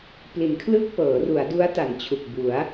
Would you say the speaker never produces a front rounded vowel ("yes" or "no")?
yes